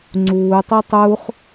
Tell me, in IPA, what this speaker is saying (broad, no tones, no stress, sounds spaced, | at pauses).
ŋ͡ǀ uː tˤ u tˤ u χ